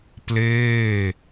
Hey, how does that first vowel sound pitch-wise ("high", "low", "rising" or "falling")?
falling